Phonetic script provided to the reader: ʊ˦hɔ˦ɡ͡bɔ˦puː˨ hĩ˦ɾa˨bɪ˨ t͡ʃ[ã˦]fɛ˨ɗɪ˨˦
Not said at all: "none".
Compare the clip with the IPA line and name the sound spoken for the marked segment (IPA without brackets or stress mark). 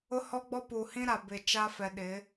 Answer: a˦